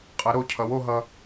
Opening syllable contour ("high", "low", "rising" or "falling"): rising